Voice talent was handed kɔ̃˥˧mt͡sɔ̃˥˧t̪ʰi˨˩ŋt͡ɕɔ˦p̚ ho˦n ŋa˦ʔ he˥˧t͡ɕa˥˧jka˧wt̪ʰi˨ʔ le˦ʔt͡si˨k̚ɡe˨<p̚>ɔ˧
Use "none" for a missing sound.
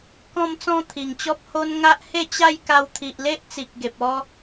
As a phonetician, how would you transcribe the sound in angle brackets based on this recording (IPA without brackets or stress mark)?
p̚